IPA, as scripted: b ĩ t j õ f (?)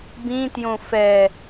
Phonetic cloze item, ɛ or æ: ɛ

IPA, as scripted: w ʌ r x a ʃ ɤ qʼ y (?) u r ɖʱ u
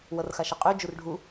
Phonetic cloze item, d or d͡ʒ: d͡ʒ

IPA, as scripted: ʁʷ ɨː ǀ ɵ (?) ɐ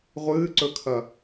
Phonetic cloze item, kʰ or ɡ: kʰ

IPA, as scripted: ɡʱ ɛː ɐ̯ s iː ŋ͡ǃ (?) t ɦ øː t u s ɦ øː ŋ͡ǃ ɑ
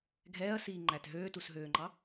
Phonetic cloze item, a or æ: æ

